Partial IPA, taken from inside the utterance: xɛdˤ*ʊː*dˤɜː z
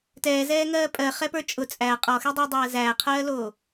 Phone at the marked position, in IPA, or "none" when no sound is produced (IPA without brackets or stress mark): ʊː